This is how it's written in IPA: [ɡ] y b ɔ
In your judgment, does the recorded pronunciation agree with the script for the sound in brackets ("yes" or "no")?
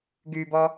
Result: yes